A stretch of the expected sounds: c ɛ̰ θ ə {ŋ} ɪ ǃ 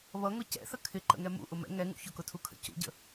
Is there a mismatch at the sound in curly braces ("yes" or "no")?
yes